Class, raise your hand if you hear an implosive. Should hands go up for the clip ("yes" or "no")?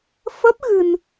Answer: no